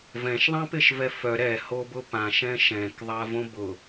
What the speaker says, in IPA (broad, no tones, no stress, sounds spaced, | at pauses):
v ɛ̃ ʃ ðˤ ã p ɪ ʃ v ɛ f œ ɾ ɛ h o b ʊ p ã ʃ ɛ̃ ʃ ɛ̃ k ðˤ a v õ b ʊ